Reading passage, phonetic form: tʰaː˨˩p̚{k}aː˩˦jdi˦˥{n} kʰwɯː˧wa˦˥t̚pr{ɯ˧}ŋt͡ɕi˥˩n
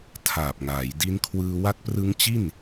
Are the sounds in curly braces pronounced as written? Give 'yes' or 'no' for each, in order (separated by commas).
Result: no, yes, no